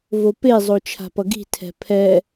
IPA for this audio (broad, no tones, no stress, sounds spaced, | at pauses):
v o p e zˤ o t͡ʃʰ a̤ p ʌ ɡ i̤ tʰ ɛ̤ pʰ ɛ